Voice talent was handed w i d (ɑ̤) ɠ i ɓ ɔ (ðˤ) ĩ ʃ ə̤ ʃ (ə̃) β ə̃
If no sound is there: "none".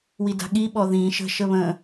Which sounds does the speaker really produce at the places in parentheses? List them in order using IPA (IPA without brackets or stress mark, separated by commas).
a̤, ð, ə